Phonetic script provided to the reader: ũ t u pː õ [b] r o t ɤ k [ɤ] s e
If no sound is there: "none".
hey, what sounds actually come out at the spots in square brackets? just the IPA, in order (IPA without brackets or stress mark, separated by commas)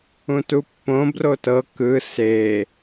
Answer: b, ɯ